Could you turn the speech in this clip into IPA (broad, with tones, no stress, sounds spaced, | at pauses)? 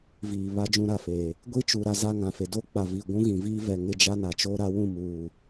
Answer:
v iː˨ β a˦ d͡ʒ ũ˦ ɾ a˨ f eː˨ | ɡʷ i˦ t͡ʃ u˨ ɾ a˦ z a˦ ŋ ã˨ f e˨ d o˦ k͡p a˨ v i˨ ɡʷ ũ˦ ɣ ĩ˨ v iː˦ v ɛ˨ ŋ ɪ˦˨ d͡ʒ a˦ n a˨ t͡ʃ o˦ ɾ a˦ w ũ˦˨ m uː˨